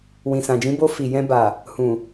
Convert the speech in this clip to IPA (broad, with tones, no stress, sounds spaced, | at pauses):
w ĩ˨ s ã˨ d͡ʒ ĩ˨˦ b o˧ f i˨ j ɛ̃˧ b a˨ | h ũ˨